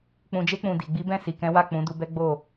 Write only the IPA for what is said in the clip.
k͡pũ˨d͡ʒe˧k͡pũ˨ di˨ ɡ͡bi˨˦bɛ̃˦˨ si˨kɛ̃˨˦wa˦˨ k͡pũ˨˦ du˧bɛ˦ ɡ͡bo˦˨

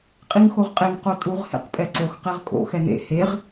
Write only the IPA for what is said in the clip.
qʼiŋxoʁqʼeŋ qotʼuʁ hḛqpʼɛǀox qeʁkʼo̰ xɛnḛ heʁ

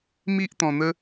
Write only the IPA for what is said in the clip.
mi˦ʔ t̪ɔ̃˧n̪ə˦

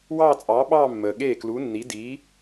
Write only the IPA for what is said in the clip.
wɑː˥˧t͡sʼɑː˨˥ɓɑː˥˧mːəː˩ ɠeː˥˩klu˨˥nːi˨˥ diː˨˥

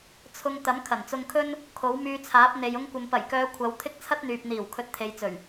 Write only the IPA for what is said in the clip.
t͡sʰʊ˧ŋ t̪ɐ˨˥mkʰɐ˨˩nt͡sʊ˧ŋkʰɵ˥n | kʰo˨˥wmyː˧t͡sʰaː˨˥p̚ n̪e˨j ʊ˧ŋkʷɐ˨mpɐ˨˩jkœː˨˧ kʷʰɐ˨˧w t̪ʰɪ˥k̚t͡sʰɐ˥t̚n̪yː˨p̚n̪iː˨˩w kʰɵ˨˥t̚t̪ʰe˨jt͡sɵ˨˩ɥ

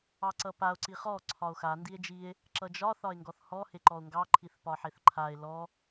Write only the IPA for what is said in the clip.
ɑǀʌpao̯ ǀiχɔ ǀʰɒo̯xa ndie̯d͡ʒie̯ | ǁʌd͡ʒɒ θɒe̯ŋɡɔθhɔ heǃɔo̯ŋɡɑ ǃʰiθpɒħeθǃʰae̯ lɔ

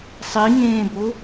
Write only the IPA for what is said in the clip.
sˤiŋẽːbo

